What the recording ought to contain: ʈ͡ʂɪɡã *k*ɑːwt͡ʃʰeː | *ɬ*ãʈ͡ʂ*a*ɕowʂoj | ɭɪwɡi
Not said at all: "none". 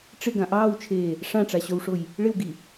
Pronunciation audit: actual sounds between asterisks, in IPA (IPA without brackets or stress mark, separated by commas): ʔ, ʂ, a